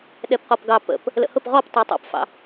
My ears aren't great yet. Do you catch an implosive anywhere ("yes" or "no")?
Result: yes